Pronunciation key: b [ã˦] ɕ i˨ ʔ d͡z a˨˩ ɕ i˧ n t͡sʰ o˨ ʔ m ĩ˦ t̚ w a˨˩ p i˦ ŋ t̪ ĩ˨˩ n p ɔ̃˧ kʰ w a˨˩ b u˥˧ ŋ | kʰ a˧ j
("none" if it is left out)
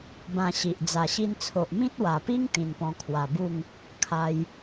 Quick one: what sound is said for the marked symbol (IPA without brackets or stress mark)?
ã˧